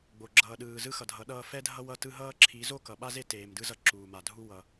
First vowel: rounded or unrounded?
rounded